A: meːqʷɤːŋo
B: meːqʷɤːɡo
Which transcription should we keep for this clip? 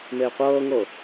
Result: A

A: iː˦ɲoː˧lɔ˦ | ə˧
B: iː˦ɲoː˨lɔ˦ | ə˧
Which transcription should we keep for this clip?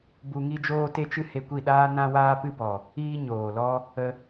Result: B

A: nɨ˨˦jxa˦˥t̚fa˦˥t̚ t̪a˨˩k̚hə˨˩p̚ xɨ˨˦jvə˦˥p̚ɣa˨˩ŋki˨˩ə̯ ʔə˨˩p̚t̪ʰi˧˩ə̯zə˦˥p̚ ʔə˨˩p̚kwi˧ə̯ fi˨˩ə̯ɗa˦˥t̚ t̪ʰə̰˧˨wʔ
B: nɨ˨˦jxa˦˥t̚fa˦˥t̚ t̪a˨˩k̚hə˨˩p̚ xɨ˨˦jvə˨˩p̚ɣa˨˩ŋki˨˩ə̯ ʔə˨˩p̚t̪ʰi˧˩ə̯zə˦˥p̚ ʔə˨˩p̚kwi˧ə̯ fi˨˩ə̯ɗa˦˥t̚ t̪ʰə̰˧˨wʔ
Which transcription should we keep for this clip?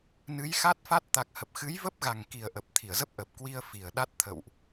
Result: A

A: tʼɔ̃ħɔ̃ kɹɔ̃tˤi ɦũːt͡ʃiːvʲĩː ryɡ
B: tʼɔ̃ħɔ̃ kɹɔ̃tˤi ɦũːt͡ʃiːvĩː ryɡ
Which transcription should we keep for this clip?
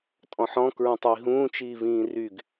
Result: B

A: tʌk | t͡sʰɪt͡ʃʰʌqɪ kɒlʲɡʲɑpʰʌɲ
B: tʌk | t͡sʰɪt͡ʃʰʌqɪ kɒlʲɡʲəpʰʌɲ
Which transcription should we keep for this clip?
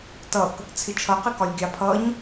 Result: A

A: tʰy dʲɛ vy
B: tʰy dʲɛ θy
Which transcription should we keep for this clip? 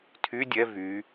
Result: A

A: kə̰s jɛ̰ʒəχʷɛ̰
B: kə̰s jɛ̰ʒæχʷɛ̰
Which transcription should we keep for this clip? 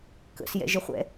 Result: A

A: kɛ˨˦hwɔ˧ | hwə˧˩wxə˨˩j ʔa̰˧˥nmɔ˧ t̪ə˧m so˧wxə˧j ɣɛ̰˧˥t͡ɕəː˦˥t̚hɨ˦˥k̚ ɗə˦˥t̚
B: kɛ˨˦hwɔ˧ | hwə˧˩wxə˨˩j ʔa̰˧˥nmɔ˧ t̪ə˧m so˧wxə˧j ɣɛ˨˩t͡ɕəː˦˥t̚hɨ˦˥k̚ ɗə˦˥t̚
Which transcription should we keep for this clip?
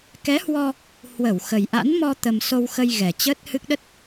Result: B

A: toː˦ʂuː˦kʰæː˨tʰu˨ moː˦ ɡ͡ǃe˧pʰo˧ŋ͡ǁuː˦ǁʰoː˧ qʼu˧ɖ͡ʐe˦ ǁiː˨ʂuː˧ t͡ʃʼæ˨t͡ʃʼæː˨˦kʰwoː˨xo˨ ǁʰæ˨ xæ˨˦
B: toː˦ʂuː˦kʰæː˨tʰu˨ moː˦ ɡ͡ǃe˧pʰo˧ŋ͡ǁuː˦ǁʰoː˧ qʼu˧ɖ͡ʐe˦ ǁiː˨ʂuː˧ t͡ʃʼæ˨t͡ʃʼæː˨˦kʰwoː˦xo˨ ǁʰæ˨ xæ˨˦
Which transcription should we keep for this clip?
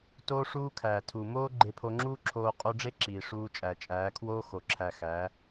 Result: B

